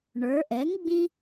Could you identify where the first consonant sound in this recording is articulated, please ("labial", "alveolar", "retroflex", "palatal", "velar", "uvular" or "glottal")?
retroflex